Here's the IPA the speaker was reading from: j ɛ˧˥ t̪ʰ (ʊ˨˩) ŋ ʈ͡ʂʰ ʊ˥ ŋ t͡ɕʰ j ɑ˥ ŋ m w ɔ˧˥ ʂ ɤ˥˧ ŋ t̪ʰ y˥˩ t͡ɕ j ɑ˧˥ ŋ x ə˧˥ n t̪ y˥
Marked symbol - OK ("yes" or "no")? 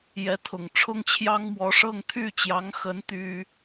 yes